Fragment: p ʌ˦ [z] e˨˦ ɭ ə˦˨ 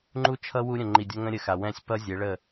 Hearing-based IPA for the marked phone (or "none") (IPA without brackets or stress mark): zʲ